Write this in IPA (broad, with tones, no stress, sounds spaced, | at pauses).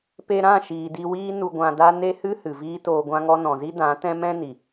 p e˧ ɾ ã˦˨ ʃ iː˨ d i˧ w iː˦ n u˧ ɡʷ ã˧ d a˦ n e˦ h ɨ˦ h ɨ˨ v iː˦ t oː˧ ɡʷ ã˦ ŋ ɔ˦ n ɔ̃˨ z i˦ d ã˨˦ t ɛ̃˦ m ɛ̃˦ n i˨